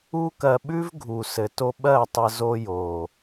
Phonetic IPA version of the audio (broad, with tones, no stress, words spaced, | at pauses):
u˦kɜ˧ɓʉ˦v ɡʱu˨sɘ˨to˧ ɓɜ˦˨tˤɘ˧ zo˧jo˨